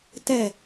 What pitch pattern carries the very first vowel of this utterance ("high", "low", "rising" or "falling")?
falling